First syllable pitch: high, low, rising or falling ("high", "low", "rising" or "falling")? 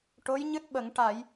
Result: rising